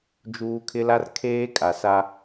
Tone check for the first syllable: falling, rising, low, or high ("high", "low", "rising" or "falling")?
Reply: high